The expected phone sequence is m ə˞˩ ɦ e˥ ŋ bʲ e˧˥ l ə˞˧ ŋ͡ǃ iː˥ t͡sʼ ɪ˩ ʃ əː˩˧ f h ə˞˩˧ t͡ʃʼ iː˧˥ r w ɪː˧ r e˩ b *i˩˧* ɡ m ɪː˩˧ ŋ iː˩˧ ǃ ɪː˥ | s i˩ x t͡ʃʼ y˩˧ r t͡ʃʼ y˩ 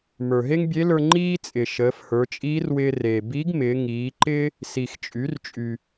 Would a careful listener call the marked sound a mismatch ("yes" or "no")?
yes